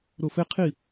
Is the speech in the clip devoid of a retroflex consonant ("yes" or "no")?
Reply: yes